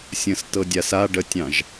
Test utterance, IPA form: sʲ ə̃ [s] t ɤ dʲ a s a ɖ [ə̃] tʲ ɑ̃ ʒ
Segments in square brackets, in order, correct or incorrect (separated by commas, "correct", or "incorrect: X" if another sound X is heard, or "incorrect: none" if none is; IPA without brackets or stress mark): correct, incorrect: ə